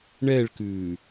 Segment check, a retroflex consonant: present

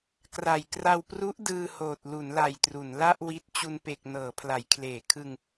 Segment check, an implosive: absent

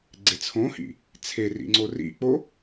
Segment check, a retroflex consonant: absent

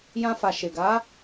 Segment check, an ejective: absent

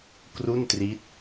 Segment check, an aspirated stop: absent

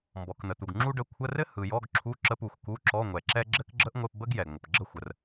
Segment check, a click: present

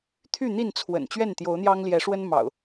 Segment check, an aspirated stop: present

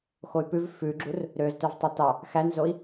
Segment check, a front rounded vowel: present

